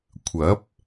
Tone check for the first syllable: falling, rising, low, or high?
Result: rising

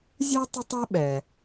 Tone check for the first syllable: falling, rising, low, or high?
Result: high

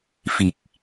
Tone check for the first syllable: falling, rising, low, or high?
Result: low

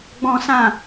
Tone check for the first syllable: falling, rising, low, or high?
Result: high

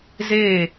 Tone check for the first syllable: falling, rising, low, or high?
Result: falling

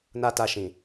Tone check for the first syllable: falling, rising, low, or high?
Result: high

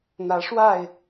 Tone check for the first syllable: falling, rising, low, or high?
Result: rising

